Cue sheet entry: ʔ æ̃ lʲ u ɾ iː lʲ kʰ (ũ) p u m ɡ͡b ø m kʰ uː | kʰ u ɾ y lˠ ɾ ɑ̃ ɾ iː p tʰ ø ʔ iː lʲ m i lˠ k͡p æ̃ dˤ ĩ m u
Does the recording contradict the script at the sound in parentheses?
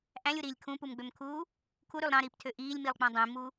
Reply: no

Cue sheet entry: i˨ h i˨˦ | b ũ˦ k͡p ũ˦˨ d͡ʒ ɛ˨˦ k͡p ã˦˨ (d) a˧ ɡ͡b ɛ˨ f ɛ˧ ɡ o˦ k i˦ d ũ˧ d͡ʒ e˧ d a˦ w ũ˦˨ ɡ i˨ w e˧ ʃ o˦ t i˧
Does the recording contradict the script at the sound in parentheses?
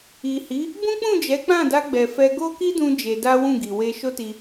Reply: no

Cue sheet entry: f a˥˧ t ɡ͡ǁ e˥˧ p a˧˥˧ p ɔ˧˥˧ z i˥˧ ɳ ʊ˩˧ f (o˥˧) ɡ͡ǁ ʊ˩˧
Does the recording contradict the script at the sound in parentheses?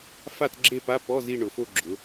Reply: no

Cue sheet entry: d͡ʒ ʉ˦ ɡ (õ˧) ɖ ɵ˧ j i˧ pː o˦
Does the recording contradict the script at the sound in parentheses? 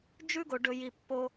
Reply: yes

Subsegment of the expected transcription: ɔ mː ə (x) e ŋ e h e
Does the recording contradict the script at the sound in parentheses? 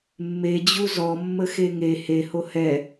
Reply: no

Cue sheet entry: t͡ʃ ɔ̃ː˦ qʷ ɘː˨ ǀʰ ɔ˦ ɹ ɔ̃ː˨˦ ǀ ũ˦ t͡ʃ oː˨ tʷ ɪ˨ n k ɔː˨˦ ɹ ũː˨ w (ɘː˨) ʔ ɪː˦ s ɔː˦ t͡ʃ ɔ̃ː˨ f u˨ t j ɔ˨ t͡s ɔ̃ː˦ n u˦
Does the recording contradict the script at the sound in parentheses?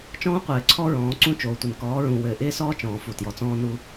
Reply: no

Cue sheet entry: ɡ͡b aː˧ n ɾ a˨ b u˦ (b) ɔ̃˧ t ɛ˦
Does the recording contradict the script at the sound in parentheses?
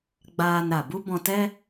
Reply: no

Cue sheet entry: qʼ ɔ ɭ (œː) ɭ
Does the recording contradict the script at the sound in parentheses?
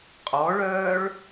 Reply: no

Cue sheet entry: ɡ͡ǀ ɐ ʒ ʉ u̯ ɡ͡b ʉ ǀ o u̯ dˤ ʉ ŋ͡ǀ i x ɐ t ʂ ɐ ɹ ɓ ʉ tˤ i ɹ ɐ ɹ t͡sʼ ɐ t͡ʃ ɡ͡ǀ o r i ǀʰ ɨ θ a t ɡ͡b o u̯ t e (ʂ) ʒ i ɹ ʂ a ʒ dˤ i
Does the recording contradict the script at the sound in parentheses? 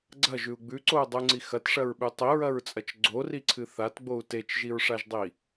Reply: yes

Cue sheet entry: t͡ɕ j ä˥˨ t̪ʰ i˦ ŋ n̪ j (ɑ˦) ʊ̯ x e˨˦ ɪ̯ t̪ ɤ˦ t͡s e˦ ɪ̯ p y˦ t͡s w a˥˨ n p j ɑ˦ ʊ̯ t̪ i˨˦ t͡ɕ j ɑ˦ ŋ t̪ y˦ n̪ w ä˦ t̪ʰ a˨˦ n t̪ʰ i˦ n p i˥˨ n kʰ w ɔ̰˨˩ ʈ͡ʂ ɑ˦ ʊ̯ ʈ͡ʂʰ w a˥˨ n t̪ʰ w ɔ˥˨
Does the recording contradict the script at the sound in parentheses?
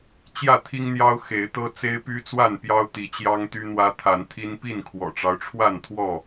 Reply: no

